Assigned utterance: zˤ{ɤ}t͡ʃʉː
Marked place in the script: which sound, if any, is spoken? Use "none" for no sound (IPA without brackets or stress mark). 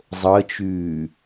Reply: ɤ